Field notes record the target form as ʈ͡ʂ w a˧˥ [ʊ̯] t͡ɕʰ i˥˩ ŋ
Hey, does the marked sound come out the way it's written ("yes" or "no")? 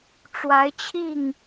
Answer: no